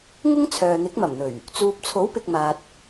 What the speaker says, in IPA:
ŋʊ˥ŋ t͡sʰœː˨n̪ɪ˨˥k̚mɐ˨˩mn̪ɵ˨˩ɥ | t͡suː˨p̚t͡sʰo˨˥wpɪ˨k̚ maː˨t̚

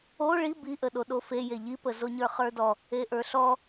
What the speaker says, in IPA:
o ɭi biʔə ɗoɗofe jeʎipə zoɲə˞χə˞dɔ | eʔə˞ɬɔ

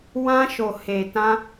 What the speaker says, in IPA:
wã˧ʃo˨he˨tã˧

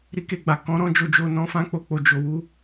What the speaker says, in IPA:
ɾi˧ke˧ɡ͡ba˨ kɔ̃˨˦ɾɔ̃˦ d͡ʒo˧d͡ʒo˧nɔ̃˧fã˦ k͡po˦˨k͡po˧ d͡ʒo˧ wu˦

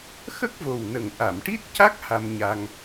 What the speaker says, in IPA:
xə˦˥k̚vo˨˩wnə˨˩ŋ ʔa˨˩˨mʈi˦˥t̚ca˦˥k̚ ha˧mɲa˧ŋ

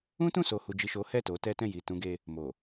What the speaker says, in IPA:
ũ˦tũ˦˨ so˨hu˨d͡ʒi˨ ʃo˨˦ hɛ˦˨to˨˦tɛ˦tɛ̃˦˨ ji˨tũ˧ɡe˧ | mo˨

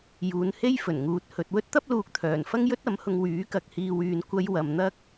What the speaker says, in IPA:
juː˨˧nhe˥j fɵ˨˩nŋuː˧t̚hɵ˧t̚ wɵ˥t̚t̪ɐ˥p̚luː˨k̚t̪ʰœː˨˩n fɐ˥ŋjɵ˥t̚ɐ˨˥mhʊ˧ŋ wyː˨˥kɐ˨k̚ hiː˨wyː˨nkʷɐ˧j wɐ˨mn̪ɐ˥k̚

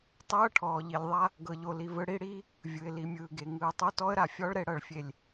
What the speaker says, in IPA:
tˤɤː˦ʈʰɔː˨ʎi˨lʲðˤa˦ | ɡɤ˨ʎo˨li˨ vɯ˨ɽi˦˨ɽiː˦ | vʲɯ˨ɪ̯li˨mʲɯː˨ɡe˨ ŋɯː˨tˤo˦tɔ˦ə̯ɾa˨ fʲɔ˦ɭɾe˨ ɽɤ˨ɭfʲe˨lʲ

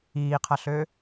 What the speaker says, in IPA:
iːqʰɐɬø

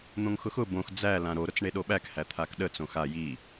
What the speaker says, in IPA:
n̪õŋxʊxʊ bõx d͡zælã ɾoɾʊt͡s ɳeɗoɓækhæ t̪ʰakɗə t͡sõxa ji

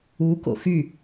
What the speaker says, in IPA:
u ko̰xy

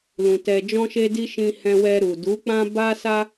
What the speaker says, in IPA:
lũ˨ tɛ˨d͡ʒɔ̃˧ʃe˧di˧ ʃĩ˧hɛ̃˧wɛ˧ɾu˨ du˨˦k͡pã˦ ba˦sa˦

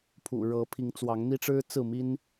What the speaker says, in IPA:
pʰṵ˨˩ ɻɤ˨˦ pʰi˨˦ŋt͡swɑ˨˦ŋn̪i˦ʈ͡ʂɻ̩˦ t͡sɹ̩˥˨mi˦n

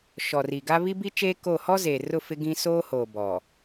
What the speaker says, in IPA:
ʃɔ˨ri˨ɡa˦ βi˦bi˦t͡ʃeː˦ ko˦˨ hɔ˦zeː˨rʊ˦˨ fɪ˦ɡĩ˦ soː˦hoː˨ bɔ˨

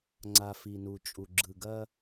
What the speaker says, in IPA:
ŋ͡ǀa˨fi˨nu˨t͡ʃʼu˨ ɡ͡ǁɯ˨ɡɐ˦

